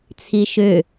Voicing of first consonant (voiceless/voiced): voiceless